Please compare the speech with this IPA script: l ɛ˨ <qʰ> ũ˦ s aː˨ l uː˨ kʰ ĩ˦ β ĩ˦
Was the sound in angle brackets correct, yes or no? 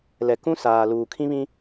no